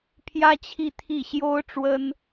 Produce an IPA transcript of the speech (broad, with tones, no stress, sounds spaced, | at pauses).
pʰ j ä˥ t͡ɕʰ i˥˧ t̪ʰ i˥˩ ɕ j o˥ ʊ̯ ʈ͡ʂ w ə˥ n